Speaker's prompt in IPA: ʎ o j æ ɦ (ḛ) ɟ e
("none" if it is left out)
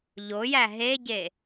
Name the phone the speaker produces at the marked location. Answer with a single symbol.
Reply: e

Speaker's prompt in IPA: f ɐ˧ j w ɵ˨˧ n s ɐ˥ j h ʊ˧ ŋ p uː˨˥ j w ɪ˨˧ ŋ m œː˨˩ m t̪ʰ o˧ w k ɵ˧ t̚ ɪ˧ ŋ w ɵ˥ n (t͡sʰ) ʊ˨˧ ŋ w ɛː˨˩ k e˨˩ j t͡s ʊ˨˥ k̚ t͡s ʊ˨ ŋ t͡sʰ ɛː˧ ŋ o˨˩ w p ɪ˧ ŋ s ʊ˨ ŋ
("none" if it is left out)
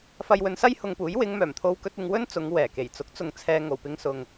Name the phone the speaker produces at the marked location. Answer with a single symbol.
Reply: t͡s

